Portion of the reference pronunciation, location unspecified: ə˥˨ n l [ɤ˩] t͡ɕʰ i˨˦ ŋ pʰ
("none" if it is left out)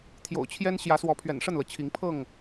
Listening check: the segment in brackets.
ɤ˩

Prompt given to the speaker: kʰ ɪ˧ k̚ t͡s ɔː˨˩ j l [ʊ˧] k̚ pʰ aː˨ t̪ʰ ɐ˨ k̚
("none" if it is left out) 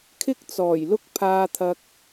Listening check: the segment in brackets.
ʊ˧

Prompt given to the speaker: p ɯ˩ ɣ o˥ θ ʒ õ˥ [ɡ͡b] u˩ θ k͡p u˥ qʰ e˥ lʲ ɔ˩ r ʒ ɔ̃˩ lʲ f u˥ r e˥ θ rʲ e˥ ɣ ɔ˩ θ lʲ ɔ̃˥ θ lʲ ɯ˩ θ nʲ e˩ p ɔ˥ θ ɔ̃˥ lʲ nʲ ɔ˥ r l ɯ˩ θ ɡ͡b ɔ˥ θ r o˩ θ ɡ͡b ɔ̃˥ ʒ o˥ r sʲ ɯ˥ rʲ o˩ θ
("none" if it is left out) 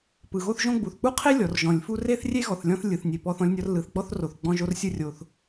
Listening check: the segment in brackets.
ɡ͡b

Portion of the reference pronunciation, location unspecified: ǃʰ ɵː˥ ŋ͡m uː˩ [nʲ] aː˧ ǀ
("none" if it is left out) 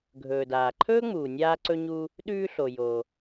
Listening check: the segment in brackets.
nʲ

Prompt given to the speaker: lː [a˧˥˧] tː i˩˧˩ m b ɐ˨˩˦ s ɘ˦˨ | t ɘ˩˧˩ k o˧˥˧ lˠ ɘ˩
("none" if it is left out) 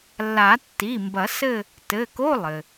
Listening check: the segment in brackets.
a˨˩˦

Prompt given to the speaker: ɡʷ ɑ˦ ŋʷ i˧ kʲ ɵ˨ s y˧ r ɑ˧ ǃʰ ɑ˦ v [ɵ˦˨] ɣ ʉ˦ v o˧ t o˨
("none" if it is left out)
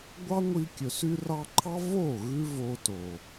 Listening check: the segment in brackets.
o˦˨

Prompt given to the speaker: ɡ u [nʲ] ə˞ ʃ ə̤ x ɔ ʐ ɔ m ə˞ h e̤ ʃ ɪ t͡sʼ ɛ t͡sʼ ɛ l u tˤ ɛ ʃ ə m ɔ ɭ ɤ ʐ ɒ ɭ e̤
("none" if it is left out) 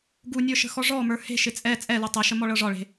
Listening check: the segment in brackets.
nʲ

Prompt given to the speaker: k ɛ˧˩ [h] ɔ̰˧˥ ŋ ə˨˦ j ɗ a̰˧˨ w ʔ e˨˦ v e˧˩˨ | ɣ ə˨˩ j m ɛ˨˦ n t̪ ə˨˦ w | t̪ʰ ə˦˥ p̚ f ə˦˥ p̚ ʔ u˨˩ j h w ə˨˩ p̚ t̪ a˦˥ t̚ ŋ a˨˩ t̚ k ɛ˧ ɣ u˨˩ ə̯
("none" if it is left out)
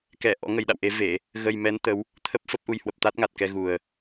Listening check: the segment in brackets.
ʔ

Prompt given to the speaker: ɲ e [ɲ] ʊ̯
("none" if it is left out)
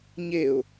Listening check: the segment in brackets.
none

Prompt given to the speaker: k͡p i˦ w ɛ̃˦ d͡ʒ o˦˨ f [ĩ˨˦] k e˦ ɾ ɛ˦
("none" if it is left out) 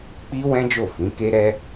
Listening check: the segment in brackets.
ĩ˨˦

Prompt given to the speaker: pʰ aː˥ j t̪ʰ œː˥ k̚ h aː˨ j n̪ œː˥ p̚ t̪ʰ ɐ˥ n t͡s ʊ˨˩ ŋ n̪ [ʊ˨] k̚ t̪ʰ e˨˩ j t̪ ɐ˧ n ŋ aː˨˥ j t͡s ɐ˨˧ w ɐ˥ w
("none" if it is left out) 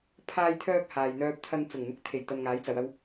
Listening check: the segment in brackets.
ʊ˧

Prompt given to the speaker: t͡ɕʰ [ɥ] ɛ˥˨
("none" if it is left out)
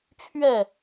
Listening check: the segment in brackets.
ɥ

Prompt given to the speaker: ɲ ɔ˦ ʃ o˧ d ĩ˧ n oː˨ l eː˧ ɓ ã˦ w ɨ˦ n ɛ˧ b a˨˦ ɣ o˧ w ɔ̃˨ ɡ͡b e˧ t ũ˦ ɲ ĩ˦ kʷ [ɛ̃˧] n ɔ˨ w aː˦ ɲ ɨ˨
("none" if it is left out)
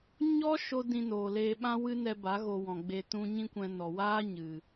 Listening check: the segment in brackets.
ɛ̃˧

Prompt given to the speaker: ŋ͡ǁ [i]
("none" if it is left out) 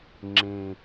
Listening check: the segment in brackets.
ĩ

